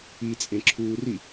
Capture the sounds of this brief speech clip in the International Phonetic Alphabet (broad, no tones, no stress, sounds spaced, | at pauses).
i t͡sʼ ẽ ǁʰ uː r i